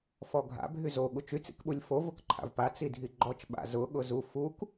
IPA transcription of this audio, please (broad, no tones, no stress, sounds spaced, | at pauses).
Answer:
f ɔ ɡʱ a̰ bʱ y z o ɠ u t͡ʃ y t͡s ḭ k ɓ u lʲ f o v ʊ k ǃʰ a̰ v p a t͡s i dʱ i ɡ͡ǃ ɔ t͡ʃ ɓ a̰ z ʊ ɠ ʊ z u f u k